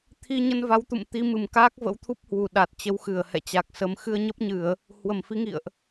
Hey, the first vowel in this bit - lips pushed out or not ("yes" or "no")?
no